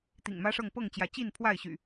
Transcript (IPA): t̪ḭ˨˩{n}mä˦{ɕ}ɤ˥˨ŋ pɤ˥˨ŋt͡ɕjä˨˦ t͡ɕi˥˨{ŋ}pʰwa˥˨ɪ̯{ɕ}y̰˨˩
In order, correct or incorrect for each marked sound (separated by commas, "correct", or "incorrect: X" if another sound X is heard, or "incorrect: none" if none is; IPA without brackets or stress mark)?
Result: incorrect: ŋ, incorrect: ʂ, incorrect: n, correct